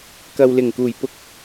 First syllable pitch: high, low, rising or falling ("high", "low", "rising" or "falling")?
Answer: low